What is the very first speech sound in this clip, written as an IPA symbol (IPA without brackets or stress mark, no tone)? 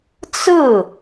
t͡s